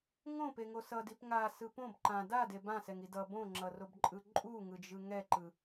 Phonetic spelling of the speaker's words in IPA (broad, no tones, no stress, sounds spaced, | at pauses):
ŋ õ p e ŋ o s ʌ d i p ŋ a s ɯ p õ b ǃ ã d a d e b ã s ɛ ŋ i d ʌ b õ ŋ͡ǁ ʌ r o b ǃʼ ɯ ǃʼ u ŋ ɯ d͡ʒ ɯ ŋ ɛ ǃ ɯ